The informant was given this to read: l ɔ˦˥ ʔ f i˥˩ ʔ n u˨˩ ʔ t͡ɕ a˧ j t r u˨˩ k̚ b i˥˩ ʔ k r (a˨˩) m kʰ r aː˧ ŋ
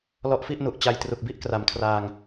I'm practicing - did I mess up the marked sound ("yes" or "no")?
no